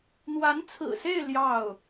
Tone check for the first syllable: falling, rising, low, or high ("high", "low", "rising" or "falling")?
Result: rising